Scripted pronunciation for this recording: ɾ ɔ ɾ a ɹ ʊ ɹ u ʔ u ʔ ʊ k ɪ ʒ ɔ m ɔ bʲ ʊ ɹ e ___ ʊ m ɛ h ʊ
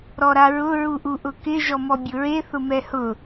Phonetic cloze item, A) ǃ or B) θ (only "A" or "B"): B